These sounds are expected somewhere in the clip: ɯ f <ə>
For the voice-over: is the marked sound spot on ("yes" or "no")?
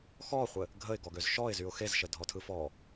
no